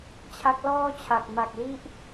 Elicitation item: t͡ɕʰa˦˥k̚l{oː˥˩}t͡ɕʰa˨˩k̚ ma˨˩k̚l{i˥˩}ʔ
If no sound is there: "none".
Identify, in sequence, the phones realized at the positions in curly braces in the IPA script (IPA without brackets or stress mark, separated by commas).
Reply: ɔː˥˩, i˦˥